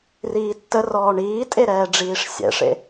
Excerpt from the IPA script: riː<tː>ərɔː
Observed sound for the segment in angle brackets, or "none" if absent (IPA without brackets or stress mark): tː